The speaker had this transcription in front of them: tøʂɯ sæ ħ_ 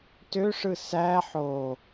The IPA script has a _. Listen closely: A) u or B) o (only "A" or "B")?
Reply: B